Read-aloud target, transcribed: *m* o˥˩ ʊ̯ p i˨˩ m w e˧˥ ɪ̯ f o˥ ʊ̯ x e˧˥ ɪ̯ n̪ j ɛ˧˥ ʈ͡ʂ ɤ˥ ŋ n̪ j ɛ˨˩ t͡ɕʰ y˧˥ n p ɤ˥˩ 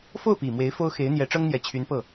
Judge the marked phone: incorrect: f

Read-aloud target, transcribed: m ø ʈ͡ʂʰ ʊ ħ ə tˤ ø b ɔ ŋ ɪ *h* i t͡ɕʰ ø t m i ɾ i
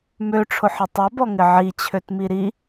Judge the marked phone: incorrect: ʕ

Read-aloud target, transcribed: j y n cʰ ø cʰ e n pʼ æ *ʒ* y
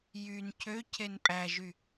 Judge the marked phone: correct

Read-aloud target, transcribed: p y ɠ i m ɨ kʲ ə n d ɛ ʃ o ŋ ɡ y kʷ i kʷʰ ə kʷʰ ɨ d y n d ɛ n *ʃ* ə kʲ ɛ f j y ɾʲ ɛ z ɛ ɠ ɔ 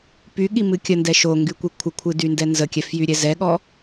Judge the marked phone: incorrect: z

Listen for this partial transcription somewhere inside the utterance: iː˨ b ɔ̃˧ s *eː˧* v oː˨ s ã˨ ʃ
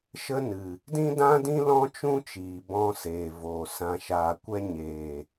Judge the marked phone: incorrect: eː˨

